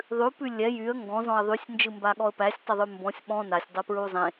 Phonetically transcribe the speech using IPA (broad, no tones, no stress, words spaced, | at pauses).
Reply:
ðˤʉpʉ lʲɛ jyə̯ ŋɡɔ̃ zɔ̃ə̯ðˤysʲ nd͡ʒɯmbaɠɔə̯pæsʲ tˤəðˤʉmbɔ̃sʲ ɓɔ̃ nasʲdˤɛ pɹuzˤẽ